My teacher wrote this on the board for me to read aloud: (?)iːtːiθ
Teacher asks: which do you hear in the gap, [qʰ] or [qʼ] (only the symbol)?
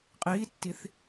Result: qʼ